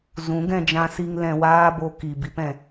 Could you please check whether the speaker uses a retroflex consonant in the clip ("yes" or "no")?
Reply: no